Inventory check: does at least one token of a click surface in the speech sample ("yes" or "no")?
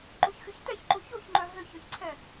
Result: yes